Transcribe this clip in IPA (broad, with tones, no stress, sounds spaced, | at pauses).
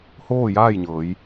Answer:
h oː˥˨ j aː˥˨ j ɲ ɤː˩˧ j